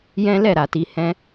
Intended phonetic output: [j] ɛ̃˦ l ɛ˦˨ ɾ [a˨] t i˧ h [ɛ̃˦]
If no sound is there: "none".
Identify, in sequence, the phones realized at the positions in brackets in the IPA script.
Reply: j, a˨, ɛ̃˦

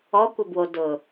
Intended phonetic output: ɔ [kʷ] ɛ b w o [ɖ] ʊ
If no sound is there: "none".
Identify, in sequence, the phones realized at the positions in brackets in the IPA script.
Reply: kʷ, d

